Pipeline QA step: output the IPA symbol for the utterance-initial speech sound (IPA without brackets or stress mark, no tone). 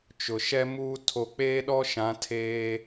t͡ʃ